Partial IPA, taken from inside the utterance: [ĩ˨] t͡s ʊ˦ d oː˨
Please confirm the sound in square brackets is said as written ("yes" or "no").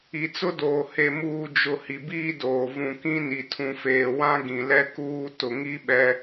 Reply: no